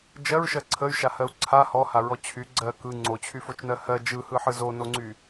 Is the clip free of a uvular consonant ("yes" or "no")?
yes